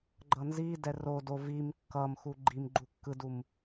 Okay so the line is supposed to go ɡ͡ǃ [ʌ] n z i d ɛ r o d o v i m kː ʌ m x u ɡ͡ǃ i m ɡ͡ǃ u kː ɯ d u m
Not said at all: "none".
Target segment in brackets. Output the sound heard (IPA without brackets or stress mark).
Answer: ʌ